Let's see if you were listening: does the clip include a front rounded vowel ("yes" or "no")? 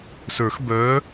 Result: yes